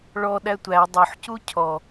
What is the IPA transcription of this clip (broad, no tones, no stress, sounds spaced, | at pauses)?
ɭ ɔ ɗ æ tʷ æ dˤ o ħ c u cʰ ɔ